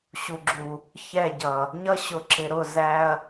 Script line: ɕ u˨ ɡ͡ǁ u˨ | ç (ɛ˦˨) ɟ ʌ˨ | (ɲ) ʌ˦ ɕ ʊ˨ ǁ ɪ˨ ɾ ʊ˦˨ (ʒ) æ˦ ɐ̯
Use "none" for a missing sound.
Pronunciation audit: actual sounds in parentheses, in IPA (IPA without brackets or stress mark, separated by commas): ɛ˦˨, ɲ, z